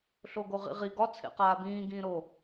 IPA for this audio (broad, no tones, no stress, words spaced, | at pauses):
ɬoɡoʁḭʁi ɡɒ t͡sʰḛqaːbĩː ɡĩːɾo